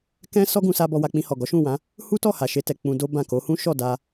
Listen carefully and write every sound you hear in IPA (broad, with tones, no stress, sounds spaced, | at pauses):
k ɛ̃˦ s ɔ˦ ɡ ũ˧ s a˧ b ɔ˧ w a˧ k͡p ĩ˧ h ɔ˨ ɡ ɔ˨˦ ʃ ũ˦˨ w ã˨˦ | h u˦ t ɔ˦˨ h a˨ ʃ e˧ t ɛ˨ k͡p ũ˧ d o˦ b ã˦˨ k o˨˦ h ũ˦ ʃ ɔ˦˨ d a˧